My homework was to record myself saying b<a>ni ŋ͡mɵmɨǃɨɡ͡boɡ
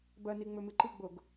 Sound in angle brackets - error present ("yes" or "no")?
yes